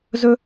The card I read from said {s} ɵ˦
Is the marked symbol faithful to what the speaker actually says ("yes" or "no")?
no